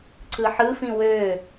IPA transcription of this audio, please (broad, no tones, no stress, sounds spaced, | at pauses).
ǀ ɯ ħ ɯ f ĩ w ø